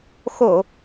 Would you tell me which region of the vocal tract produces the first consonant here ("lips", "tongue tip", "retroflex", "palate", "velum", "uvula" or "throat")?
velum